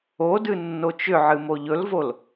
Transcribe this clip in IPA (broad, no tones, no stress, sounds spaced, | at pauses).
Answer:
o d ɨ nː o t͡ʃ ʏ ʕ ɨ m o ʎ ɵ l v o l